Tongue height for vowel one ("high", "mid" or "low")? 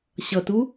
mid